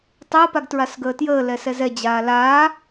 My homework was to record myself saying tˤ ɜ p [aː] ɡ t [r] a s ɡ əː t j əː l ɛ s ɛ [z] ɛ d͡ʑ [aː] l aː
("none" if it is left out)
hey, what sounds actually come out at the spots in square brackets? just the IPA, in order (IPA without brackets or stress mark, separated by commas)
a, ɹ, z, aː